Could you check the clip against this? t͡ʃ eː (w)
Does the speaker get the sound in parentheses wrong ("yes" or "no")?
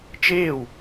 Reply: no